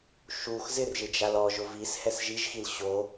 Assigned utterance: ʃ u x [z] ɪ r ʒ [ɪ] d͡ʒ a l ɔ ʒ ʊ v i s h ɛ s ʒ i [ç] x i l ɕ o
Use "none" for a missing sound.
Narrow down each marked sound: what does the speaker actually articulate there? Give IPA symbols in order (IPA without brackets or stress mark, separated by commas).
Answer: z, ɪ, ʒ